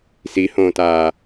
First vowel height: high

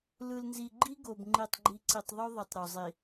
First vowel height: high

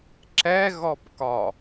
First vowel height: mid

